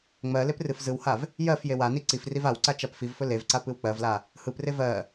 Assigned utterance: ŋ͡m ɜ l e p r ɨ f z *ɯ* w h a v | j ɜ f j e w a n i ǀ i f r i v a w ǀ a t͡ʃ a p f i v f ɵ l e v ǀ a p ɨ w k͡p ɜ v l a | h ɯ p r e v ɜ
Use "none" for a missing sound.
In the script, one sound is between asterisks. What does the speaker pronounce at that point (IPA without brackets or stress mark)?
ɯ